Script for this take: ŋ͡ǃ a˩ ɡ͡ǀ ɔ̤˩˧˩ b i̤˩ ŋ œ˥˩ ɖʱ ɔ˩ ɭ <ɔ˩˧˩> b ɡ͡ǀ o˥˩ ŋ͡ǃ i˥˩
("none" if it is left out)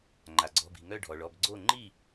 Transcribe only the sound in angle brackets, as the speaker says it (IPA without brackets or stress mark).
ɔ˩˧˩